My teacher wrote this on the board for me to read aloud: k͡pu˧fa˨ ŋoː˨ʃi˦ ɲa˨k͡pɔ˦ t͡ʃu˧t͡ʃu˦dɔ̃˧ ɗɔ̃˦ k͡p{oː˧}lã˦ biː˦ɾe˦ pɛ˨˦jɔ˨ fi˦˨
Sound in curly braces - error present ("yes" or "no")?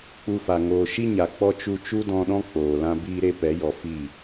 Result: yes